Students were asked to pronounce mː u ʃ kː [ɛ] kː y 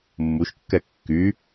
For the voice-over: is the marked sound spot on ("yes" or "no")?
yes